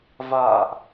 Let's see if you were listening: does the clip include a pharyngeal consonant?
no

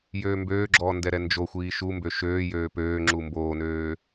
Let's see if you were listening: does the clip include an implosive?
no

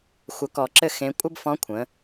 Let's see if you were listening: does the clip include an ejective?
yes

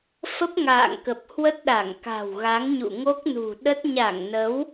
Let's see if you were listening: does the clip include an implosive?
yes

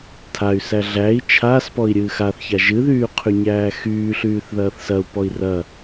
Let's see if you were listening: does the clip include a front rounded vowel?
yes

